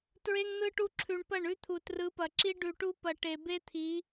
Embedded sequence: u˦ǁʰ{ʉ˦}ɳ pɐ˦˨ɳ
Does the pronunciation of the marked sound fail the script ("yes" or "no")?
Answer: yes